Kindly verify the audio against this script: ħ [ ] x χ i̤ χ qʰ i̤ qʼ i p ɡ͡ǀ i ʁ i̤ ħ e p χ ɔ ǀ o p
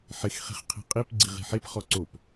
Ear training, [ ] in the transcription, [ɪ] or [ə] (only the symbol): ɪ